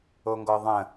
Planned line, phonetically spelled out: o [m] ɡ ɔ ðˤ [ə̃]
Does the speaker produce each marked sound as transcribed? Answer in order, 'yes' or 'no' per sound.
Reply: no, yes

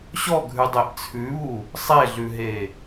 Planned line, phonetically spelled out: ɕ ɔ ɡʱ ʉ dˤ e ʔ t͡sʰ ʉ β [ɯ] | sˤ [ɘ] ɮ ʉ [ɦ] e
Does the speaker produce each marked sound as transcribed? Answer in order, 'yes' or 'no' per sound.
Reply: no, no, yes

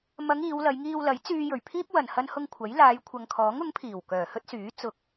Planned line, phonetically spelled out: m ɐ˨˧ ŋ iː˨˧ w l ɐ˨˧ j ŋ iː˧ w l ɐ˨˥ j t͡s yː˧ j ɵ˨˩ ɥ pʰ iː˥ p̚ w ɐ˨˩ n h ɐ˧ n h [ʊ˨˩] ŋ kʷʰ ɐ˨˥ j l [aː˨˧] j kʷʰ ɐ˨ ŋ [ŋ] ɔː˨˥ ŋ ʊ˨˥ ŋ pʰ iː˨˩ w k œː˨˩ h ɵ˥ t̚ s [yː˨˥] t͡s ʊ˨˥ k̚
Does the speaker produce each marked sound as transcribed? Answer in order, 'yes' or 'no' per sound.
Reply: no, yes, no, yes

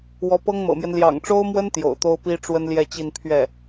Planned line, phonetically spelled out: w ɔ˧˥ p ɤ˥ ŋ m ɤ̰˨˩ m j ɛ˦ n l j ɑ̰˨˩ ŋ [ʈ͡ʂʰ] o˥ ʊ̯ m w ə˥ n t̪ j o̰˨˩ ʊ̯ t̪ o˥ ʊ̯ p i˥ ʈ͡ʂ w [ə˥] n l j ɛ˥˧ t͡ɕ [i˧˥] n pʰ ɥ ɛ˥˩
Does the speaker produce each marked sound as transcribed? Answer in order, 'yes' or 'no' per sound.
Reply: no, yes, no

